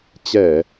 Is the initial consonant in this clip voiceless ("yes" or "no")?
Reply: yes